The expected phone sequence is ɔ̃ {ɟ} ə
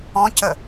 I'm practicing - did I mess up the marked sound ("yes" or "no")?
yes